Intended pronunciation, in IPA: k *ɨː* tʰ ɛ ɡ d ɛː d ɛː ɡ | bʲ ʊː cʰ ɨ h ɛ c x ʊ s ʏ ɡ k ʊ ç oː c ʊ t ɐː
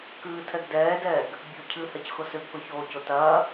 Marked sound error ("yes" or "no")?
no